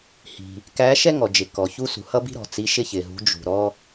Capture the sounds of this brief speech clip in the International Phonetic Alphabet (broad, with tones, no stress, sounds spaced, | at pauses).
h i̤˩ | k æː˨˦ ʃ ɛ˦ ŋ ɔ˩ d͡ʒ ɪ˩ k ɔ˩ ç u˦ s ṳ˩ h ʌ˦ b i̤˦ ɾ ɔ̤˩ t͡s i˨˦ ʃ ɪ˦ ç ɪ˩ ɦ ṳ˨˦ d͡ʒ ṳ˩ ɾ ɔ˦